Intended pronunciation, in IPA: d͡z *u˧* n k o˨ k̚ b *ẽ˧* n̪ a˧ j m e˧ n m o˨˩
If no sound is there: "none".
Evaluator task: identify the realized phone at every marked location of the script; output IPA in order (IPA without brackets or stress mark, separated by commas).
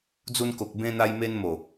u˧, ẽ˧